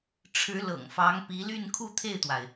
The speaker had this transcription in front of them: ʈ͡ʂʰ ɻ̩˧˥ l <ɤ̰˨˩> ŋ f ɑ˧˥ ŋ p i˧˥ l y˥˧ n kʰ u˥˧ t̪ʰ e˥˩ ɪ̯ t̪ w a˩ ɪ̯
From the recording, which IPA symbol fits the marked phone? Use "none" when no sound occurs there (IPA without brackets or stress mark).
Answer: ɤ̰˨˩